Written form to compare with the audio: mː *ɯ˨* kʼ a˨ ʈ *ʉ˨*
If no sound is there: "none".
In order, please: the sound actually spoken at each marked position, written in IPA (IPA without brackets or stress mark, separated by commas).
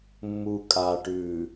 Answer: u˨, ʉ˨